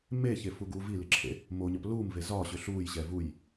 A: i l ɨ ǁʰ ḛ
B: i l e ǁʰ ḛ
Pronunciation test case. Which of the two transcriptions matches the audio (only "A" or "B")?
A